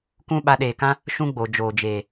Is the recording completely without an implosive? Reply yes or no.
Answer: no